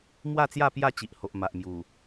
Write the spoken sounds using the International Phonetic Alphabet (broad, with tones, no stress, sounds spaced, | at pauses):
m w a˥˧ t͡s j a˥˧ p j a˥˧ t͡ɕ i˨ ʔ h o˨ ʔ m a˨ ʔ m j u˨˩